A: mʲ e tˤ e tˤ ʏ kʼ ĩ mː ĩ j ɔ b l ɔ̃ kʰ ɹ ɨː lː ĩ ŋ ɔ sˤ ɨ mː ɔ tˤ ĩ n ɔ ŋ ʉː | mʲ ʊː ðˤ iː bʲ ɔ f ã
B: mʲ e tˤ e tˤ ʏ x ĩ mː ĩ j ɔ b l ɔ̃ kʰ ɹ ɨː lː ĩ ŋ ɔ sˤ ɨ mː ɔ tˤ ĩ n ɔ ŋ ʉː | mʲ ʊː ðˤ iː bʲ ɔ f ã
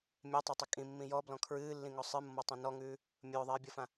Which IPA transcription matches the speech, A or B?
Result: A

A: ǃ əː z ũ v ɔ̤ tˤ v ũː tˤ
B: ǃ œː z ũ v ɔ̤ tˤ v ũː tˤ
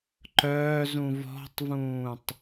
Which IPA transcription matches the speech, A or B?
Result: B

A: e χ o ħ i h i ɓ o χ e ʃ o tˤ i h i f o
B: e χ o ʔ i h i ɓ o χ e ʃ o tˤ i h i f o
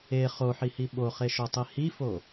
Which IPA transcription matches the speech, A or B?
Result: A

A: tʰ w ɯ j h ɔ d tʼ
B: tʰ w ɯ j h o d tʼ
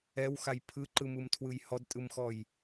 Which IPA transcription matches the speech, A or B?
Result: A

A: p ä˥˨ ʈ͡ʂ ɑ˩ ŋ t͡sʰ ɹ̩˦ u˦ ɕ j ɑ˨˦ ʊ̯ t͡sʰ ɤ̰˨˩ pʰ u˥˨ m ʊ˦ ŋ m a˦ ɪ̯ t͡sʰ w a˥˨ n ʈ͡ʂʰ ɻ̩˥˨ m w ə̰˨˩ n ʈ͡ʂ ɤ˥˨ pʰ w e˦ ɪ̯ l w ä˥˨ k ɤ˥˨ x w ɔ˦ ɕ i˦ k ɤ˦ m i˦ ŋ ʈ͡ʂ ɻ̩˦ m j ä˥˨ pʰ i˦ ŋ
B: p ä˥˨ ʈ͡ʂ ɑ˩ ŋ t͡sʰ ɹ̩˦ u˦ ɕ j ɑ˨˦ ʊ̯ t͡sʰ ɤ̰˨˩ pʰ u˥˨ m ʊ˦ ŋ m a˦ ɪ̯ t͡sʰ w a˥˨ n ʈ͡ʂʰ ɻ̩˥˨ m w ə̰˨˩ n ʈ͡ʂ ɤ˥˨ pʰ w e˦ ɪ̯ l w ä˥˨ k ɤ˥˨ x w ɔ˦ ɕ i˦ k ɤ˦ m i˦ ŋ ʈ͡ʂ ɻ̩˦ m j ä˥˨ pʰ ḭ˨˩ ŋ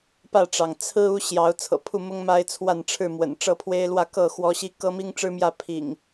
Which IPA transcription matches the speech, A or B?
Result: B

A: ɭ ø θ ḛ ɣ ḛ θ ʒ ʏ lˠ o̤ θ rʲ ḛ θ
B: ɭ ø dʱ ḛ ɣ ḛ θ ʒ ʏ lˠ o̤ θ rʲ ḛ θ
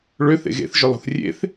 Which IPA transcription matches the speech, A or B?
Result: A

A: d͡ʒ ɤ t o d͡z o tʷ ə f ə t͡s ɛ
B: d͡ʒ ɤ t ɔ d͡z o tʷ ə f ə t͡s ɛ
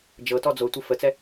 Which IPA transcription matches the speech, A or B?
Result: B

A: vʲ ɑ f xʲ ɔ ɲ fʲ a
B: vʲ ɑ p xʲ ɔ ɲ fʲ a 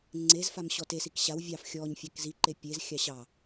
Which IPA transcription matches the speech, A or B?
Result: A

